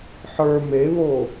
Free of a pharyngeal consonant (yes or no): no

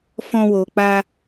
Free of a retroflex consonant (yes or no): yes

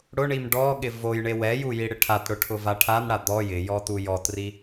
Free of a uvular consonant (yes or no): yes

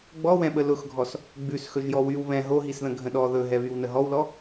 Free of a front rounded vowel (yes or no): no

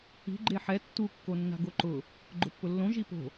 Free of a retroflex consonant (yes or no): yes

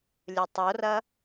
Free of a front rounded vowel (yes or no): yes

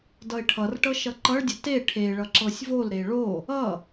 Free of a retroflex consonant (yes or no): no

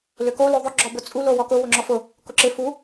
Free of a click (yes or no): no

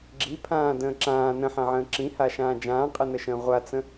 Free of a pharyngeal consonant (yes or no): no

